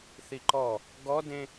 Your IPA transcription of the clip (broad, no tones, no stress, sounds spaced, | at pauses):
θ i ǃ ɔ | ɡ ɔ d ẽ